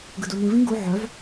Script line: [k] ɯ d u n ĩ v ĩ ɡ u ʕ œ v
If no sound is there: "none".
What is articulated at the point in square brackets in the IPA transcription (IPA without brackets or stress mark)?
ɡ